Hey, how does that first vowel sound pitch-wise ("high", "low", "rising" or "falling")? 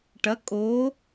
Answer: rising